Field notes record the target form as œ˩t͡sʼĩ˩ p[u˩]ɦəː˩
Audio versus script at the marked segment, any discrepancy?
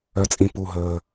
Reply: no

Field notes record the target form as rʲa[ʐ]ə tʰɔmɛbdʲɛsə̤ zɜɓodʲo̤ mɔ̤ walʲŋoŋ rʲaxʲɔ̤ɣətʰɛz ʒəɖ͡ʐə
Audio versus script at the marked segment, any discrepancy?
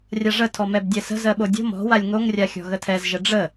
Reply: no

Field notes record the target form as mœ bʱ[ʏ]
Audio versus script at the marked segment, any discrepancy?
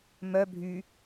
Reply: yes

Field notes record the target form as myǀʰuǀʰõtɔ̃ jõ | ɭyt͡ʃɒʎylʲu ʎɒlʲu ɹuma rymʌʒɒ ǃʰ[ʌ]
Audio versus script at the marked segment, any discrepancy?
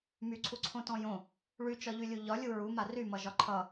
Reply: no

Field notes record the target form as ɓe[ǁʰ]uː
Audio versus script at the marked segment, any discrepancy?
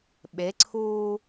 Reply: yes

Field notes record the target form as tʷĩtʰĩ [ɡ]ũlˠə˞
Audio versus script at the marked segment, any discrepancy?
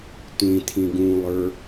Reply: no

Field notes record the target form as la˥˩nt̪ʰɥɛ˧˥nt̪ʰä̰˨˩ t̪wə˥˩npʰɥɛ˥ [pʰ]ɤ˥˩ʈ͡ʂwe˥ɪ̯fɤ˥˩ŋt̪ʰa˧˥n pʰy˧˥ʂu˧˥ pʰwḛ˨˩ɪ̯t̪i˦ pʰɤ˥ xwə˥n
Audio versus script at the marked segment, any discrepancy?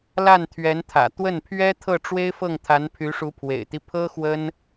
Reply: yes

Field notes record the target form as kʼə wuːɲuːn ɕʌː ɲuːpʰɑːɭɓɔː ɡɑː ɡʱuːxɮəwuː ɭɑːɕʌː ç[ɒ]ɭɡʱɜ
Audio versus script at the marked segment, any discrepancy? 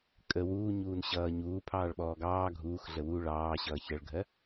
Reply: yes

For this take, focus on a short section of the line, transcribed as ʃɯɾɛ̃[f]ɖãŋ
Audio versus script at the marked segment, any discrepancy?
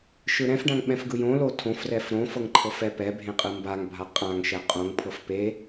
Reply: no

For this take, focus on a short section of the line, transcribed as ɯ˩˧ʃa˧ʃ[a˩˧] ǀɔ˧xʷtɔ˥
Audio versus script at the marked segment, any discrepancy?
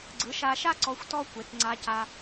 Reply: yes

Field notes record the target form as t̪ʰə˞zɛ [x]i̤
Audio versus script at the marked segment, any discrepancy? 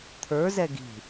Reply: yes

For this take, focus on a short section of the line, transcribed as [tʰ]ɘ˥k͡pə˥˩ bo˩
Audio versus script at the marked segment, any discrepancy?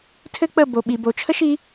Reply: no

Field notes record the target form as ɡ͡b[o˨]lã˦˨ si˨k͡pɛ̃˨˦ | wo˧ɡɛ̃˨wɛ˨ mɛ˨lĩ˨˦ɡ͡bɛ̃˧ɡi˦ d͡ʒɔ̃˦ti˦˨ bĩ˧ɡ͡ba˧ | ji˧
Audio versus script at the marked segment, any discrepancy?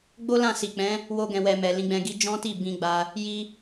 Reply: yes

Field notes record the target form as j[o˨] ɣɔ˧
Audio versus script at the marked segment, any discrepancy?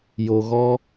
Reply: no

